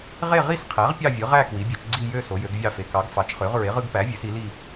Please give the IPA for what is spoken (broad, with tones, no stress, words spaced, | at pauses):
ʁe˥˧ʁi˥˧sqʰæ˩˥ʁ pʲɑ˥˧vʲɯ˩˥ ʁæ˥˧ kwi˩˥bʲø˩˥t͡ʃɡ͡ǀi˥˧ jø˥˧ so˩˥jø˩˥ɡvʲɑ˥˧fe˩˥ kɑ˩˥ɡfɑ˩˥t͡ʃχø˩˥ʁ ɹe˩˥ʁɯ˥˧ɡpæ˩˥ vʲø˩˥si˩˥li˥˧